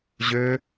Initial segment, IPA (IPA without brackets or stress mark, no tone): ʑ